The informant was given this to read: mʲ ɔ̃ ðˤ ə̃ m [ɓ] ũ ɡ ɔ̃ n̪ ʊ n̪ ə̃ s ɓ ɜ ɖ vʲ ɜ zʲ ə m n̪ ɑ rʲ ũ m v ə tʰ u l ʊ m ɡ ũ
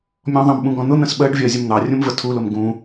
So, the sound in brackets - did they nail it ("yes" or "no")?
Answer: yes